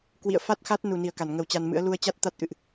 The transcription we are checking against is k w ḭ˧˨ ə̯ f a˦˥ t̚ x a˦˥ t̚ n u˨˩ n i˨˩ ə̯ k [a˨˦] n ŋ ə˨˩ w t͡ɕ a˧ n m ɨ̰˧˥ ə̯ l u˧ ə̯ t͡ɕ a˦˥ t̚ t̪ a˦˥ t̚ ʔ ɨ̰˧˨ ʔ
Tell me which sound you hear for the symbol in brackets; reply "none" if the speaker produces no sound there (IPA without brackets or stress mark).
a˧˩